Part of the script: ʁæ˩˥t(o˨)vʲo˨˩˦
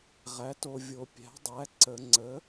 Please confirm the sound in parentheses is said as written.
yes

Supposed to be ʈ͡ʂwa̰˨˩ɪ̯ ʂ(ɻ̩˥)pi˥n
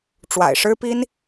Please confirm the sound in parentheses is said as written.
yes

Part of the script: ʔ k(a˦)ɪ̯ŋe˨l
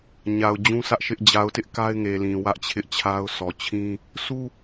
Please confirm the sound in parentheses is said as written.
yes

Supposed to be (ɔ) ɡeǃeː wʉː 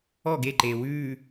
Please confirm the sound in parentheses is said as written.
yes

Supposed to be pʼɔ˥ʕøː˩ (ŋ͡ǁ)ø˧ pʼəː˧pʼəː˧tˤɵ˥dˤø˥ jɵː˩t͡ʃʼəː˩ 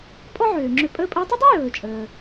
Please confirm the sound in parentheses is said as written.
yes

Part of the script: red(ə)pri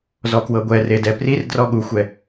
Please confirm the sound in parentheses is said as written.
no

